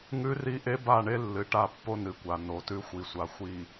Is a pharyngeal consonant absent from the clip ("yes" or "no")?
yes